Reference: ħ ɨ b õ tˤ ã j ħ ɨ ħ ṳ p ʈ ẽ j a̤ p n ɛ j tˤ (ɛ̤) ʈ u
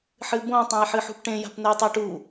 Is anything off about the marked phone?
yes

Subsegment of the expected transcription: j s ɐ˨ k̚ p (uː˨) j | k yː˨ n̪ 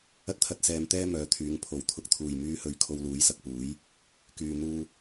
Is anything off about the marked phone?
yes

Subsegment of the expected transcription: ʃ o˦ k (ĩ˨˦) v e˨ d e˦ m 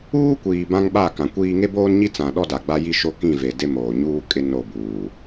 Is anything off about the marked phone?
yes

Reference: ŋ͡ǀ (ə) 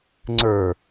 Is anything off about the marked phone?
yes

